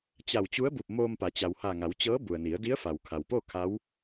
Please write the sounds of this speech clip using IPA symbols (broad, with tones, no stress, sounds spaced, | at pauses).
t͡ɕ a˧˩ w t͡ɕ u˧˥ ə̯ b u˧˩ p̚ m oː˧ m p a˩˧ t͡ɕ a˩ w h a˧˩ ŋ a˩˧ w t͡ɕ ɤː˧˥ b u˩ ə̯ n i˩˧ ə̯ d i˧˥ ə̯ f a˩ w kʰ a˩ w p o˥˨ kʰ a˧˥ w